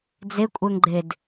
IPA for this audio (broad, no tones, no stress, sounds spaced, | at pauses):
d͡z e kʷʼ ɛ ŋ ɡ͡ǃ e d